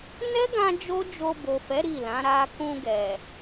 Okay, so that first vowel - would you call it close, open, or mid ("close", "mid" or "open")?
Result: mid